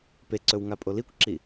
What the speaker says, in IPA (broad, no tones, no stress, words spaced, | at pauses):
peǀɵw ŋapʼolikʷǁi